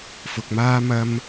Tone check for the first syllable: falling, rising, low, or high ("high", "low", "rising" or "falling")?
low